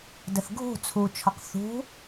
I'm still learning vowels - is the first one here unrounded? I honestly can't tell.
yes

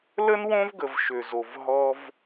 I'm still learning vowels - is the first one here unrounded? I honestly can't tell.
yes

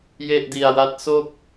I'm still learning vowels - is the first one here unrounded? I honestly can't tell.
yes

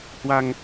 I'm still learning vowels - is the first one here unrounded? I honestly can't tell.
yes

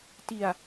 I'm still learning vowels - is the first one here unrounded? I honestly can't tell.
yes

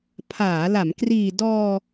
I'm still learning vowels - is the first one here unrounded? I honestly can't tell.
yes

